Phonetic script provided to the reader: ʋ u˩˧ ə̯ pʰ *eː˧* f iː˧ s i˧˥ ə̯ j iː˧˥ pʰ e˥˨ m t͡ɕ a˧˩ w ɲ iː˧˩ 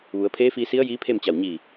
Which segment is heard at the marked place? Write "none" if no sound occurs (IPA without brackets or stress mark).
eː˧˥